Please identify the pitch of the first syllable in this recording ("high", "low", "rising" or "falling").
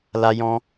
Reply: high